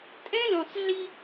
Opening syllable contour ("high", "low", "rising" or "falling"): high